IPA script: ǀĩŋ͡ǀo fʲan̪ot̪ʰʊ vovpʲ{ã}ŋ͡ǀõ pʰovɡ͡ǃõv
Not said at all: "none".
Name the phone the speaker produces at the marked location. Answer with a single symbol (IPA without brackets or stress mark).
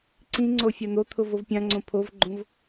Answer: ã